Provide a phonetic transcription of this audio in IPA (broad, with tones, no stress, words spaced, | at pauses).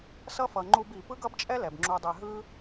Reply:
sʌ˦fʌ˨ ŋ͡ǃu˧bi˨ pɯ˦ɡʌ˦bt͡ʃʼɛ˦ lɛ˨bŋ͡ǁu˧dˤe˧ ɦɯ˦